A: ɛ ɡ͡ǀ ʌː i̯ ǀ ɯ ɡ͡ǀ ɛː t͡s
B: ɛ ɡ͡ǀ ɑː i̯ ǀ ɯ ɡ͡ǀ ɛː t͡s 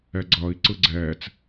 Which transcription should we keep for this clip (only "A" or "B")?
A